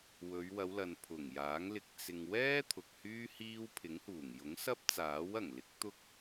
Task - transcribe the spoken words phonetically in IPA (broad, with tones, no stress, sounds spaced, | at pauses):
w ɵ˨˧ ɥ w ɐ˨˧ w l ɐ˨ n pʰ ʊ˨˩ ŋ j aː˨˥ ŋ l ɪ˧ k̚ t͡s ɪ˨ ŋ w ɛː˥ t̪ʰ ʊ˨ k̚ h yː˥ h iː˥ w pʰ ɪ˨˥ ŋ h uː˨˩ ŋ j ʊ˨˥ ŋ s ɐ˥ p̚ t͡s aː˨˥ w ɐ˨˩ ŋ l ɪ˨˥ k̚ t̪ ʊ˥ k̚